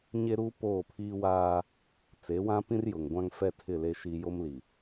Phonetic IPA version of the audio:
ɲ e˦ ɾ uː˦ p oː˦˨ pʰ iː˦ w aː˦ | t͡s e˨˦ w ã˦ p ĩ˦ r j ʊ˨ ŋ ɡʷ ã˦ ŋ f ɛ˦ tʰ ɪ˦˨ l e˦ ʃ i˦ j o˦ m l i˨

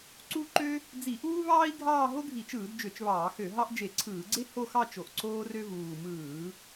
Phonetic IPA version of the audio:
ǀ u˥ ǃ ø˥ | d͡z i˧˩˧ ʔ uː˥ β ɑː˥ i̯ ɡʱ ɑː˥˧ ɦ o˥ ɡʱ i˧˩˧ t͡ʃ ɯː˧˩˧ d d͡ʒ ø˧˩˧ t͡ʃ β ɑː˧˩˧ x ø˧˩˧ ɦ ɑ˥ ʔ d͡ʒ e˧˩˧ ǀʰ ɯː˧˩˧ ɡ͡ǀ e˥ h o˥˧ x ɑ˥˧ t͡ʃ o˨˩ ʔ ǀ oː˥ r ø˥ v uː˨˩ m ɯː˧˩˧

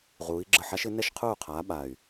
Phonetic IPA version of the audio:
ʁ uː˨˦ i̯ ɡ͡ǁ ə˦˨ ħ a˦˥ ʃ ɪ˨˦ n ɛ˦˨ ʃ qʰ uː˦˨ qʰ aː˨˦ ɓ a˦˨ y̯

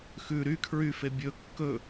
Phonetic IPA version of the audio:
x ʉ ɾ y kʰ ɹ y f e bʲ ɵ kː ɵ

